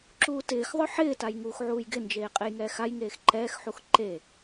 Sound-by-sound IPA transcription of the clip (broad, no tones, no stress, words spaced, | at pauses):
ǁuːtɪːxðˤʊ ħɪːtaj ŋuːxʕuːjɡɪnd͡ʒeː qʼejŋɛːxajŋeːx ǃɛːxħux ǃe